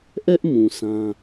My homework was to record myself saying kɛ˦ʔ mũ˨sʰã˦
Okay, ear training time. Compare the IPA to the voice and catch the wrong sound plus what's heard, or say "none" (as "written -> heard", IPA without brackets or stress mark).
k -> ʔ